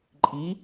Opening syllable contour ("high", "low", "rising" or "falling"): rising